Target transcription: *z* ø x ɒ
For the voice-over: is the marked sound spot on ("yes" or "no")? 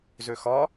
yes